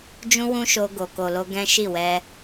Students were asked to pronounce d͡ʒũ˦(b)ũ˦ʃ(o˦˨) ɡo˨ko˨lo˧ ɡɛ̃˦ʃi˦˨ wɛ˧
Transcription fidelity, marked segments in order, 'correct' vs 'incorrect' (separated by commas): incorrect, incorrect